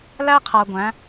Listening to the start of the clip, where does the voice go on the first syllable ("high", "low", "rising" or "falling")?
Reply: high